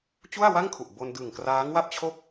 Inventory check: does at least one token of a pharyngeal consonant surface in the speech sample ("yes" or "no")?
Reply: no